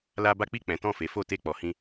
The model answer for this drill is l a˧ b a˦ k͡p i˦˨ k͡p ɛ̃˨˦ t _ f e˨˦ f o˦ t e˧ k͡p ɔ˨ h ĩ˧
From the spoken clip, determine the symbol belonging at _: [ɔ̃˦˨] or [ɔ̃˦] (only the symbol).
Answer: ɔ̃˦˨